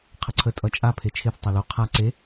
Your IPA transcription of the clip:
qʰəǀʰə tʼʌt͡ʃʼa pʰet͡ʃʰeθ tˤʌlo qʰa ǀe

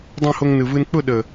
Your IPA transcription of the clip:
dˤõ˦˨ho˧ŋnɯ˨vɯ˧n k͡pʊ˦˨ɗə˨

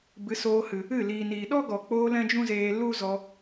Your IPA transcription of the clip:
bɨ˨˦soː˧hɨ˨ | ɨ˦˨ liː˨niː˨ ɗɔ˦ɡɔ˨k͡poː˧ lɛ̃˦d͡ʒũ˦zeː˧ lu˦zɔ˧

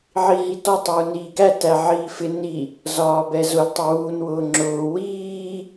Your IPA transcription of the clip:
ʕiɦitɔ tˤuːniːɡæ tæʕiːfɪ ni | zɒːbɛzʊl tˤʊwuːn wʊːŋ͡ǁʊː wiː

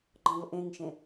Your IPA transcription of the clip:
ɡ͡ǃɔ̃vʔẽŋʃẽ

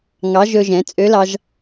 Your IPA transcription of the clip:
ŋɑ˨˥ʒɵ˧ʒɛ̃˩˧ t͡sʼø˨˥lɑ˧ʒ

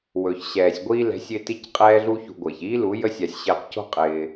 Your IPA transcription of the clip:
wɵ˨ç ɕɛː˨sʲ ɡʷiː˧lɛ̤˨˦sʲɪː˧ti˧c qʼɛː˦ɮu˦çṳ˧ ɡʷɪː˨çiː˦lu˨˦ jə˦sʲa˧sʲ ɕɪː˧qco̤˦qʼɪː˧

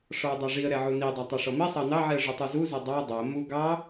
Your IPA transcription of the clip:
ʂɔə̯dˤaʐiə̯ɾɛ ʕunidˤæ tˤaʂɔmisˤɑ nɑʕiə̯ ʐutˤuzuzɛ dˤɑ dˤɛə̯ mu ɡɑ

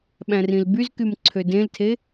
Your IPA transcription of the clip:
ɓæ̃rĩlbyzkym ǀʰødẽltʰe

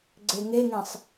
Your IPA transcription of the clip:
ɡ͡ǀeŋeŋẽsˤ

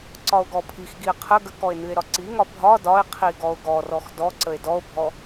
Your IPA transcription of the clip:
ǀɒo̯ɡɔpʰixɡie̯ qʰə ɡəkɔe̯ nɨe̯ɾɒǀiŋɒ bʱɒ dɒe̯qʰi ɡɔo̯ɡɔrɔx dɔǀəe̯ dɔo̯bʱɔ

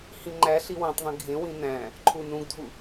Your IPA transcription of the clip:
hĩŋ͡ǃæ ɬiwõtˤðˤĩ ɡʱẽwĩ næ̃ | ǃʰunũɡdʱu

